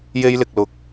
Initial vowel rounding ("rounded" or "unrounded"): unrounded